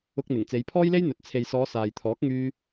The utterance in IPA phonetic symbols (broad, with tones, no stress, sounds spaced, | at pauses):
ʊ˧ k̚ n̪ ɪ˨˩ ŋ t͡s e˨˧ j pʰ ɔː˥ j l e˥ j n̪ ɵ˨˥ t̚ t͡sʰ e˨ j s ɔː˨˧ s aː˨ j t̪ʰ ɔː˨˥ k̚ ŋ yː˧